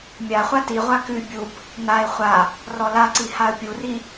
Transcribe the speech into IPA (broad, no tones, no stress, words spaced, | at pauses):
mʲaχʷa tiʁʷa kʉ bʲub | naɪ̯ χʷa | rɔlaǀi haə̯pʲuri